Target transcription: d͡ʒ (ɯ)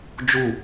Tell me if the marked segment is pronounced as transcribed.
no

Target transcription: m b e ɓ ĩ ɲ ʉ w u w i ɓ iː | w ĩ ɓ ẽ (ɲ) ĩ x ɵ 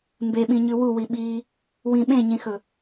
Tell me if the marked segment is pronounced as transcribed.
yes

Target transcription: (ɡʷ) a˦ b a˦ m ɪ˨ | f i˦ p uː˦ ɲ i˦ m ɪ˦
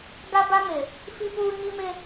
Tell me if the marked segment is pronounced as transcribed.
no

